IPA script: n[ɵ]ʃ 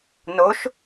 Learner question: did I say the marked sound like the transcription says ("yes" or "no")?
no